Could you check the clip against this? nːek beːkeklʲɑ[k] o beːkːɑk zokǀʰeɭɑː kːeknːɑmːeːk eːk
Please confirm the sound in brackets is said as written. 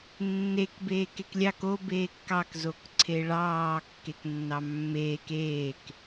yes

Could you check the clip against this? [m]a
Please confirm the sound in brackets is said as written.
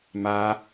yes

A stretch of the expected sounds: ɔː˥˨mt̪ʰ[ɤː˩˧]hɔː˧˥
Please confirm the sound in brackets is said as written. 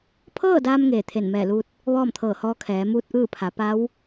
no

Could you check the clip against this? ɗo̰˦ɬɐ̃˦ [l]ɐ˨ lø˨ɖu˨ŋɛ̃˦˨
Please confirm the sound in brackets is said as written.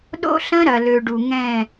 no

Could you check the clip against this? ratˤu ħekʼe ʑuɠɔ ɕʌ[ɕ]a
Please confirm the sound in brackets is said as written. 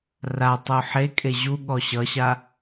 yes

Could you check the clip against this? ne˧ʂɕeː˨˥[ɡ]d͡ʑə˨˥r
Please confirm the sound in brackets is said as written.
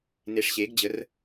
yes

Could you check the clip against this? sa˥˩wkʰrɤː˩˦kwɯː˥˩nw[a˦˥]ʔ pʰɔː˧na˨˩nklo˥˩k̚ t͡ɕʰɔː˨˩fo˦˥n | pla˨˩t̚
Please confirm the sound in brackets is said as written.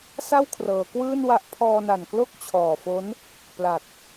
yes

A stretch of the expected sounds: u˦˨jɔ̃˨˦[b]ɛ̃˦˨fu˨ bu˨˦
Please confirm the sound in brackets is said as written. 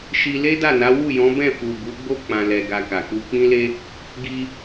yes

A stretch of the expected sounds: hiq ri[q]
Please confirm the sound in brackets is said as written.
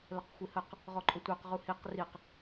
yes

